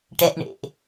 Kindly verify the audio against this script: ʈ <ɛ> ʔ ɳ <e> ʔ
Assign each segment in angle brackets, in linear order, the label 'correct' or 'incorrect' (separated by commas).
correct, incorrect